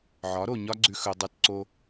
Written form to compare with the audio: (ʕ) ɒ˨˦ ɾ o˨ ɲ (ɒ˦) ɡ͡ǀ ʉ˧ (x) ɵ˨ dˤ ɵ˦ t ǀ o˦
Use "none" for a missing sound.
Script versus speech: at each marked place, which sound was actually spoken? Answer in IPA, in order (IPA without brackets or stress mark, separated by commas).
ʕ, ɒ˦, x